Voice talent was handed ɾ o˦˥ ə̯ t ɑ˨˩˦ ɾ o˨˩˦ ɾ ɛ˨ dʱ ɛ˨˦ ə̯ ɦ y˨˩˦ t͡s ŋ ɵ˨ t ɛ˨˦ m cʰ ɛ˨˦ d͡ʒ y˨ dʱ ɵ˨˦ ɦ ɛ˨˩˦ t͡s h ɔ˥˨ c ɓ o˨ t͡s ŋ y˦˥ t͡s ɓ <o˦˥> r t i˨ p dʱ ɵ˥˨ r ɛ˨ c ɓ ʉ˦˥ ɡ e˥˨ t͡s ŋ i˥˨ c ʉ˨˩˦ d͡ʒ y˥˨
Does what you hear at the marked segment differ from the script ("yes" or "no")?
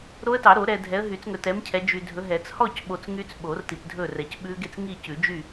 yes